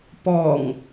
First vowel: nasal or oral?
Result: oral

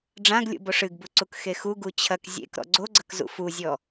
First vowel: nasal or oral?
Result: nasal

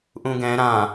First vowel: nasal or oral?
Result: nasal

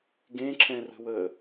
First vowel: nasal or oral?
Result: nasal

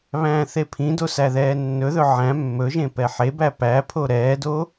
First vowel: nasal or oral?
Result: nasal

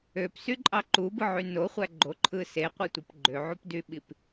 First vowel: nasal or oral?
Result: oral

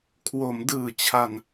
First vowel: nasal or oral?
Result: oral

